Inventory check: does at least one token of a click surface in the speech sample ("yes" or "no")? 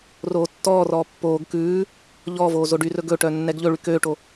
no